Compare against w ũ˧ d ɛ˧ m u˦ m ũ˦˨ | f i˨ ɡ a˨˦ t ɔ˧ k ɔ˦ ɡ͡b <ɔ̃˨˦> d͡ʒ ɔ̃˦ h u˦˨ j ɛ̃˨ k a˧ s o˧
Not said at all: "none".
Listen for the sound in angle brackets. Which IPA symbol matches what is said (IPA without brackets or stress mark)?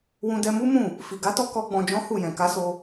ɔ̃˧